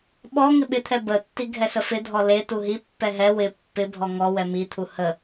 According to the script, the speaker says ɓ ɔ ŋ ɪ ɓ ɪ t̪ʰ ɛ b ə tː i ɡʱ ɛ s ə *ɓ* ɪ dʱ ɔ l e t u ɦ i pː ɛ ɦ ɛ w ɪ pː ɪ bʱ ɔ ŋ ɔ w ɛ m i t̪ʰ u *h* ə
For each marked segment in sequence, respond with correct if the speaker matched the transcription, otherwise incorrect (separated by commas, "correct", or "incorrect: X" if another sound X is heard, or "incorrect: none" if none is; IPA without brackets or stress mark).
incorrect: f, correct